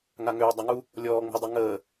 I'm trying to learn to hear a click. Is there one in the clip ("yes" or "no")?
no